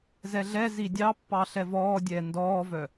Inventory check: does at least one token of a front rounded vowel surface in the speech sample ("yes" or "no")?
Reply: yes